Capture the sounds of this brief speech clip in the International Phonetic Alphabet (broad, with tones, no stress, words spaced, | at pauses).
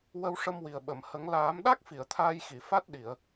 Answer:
wə˧wʂə˧mwi˨˩ə̯ ɓə˨˩˨m hə˨˩˦ŋ laː˨˩˦mɗa˦˥k̚ fi˨˩˨ə̯t̪ʰaː˧jxi˨˩˨ fa˦˥t̚ ɗi˨˩˨ə̯